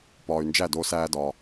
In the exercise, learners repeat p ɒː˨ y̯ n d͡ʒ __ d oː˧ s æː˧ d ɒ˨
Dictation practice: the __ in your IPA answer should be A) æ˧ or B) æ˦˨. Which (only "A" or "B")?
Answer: B